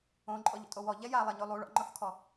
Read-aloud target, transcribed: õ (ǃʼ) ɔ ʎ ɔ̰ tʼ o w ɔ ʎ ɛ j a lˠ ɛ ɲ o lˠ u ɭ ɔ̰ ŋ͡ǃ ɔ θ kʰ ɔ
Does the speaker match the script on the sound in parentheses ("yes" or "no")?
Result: yes